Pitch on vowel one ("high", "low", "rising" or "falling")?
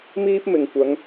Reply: high